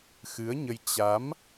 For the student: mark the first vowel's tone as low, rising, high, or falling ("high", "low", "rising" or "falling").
rising